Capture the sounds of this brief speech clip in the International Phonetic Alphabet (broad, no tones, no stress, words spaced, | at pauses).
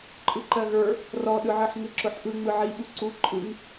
ǃʼɯǃɜɣə˞ | rɔɗɯʕɜħ ŋɯǁʊħʔɯ ŋ͡mɯʕiɓu ǀu ǃʼɯŋ